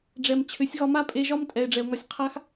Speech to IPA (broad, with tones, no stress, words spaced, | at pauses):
ɖ͡ʐɛ˨mt͡ɕʰʏ˨˦sʲɣɒ˧ ma˦pʼe˧ʒɒ˦m tʼɛ˨e̯ɖ͡ʐɛ˨o̯ŋɒ˧sʲ qʰa˦x